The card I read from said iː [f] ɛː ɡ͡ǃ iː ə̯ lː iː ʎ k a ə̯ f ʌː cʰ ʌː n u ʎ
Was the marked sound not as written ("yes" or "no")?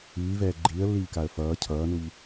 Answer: yes